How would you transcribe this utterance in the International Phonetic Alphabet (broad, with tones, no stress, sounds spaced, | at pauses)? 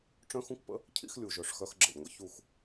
ʈ͡ʂ œ̃˦ x ũ˦ k p ə̰˦ | cʰ ḭ˦ x lʲ u˨ ʒ œ˨ ʂ x œ˧ x ɡ͡ǁ ə̰˨ lʲ ŋʷ ə̰˦ ç u˦˨ x